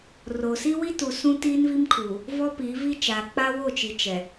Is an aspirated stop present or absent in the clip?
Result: present